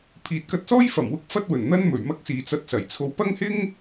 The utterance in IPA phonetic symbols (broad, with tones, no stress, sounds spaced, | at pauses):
pʰ iː˨ t̚ k ɐ˧ t̚ s ɔː˥ j f ɐ˨˩ m w ʊ˥ k̚ f ɐ˥ t̚ w ɵ˨˩ n n̪ ɐ˥ n m ɵ˨˩ ɥ m ɐ˥ k̚ s iː˨ t͡s ɐ˧ t̚ s ɐ˨˩ j t͡sʰ o˧ w p ɐ˥ ŋ h ɪ˥ ŋ